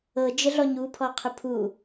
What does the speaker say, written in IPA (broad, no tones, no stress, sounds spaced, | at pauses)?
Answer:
ɤ d͡ʒ ə ɮ ɔ ɲ u pʰ ɔ qʰ ʊ pʰ u